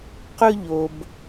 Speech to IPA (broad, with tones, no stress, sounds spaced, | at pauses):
q ɵ˥ ʎ o˧ b